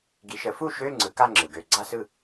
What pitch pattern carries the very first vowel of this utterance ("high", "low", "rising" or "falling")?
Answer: rising